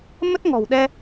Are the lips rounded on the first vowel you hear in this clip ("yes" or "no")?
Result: no